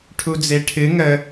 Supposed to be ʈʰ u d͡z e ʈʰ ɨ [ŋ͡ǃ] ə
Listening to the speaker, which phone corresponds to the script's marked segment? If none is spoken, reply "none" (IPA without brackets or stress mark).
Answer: ŋ